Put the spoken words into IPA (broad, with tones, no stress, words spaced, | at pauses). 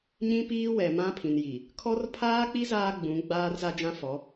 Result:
ɲĩ˦piː˦wɛ˨ mã˦pʰĩ˨nji˨ | kʰɔ˦r pʰaː˦k͡pi˦ zaː˦ɡ͡bũ˨˦ ɡ͡baː˦rza˦d͡ʒã˦fɔ˨˦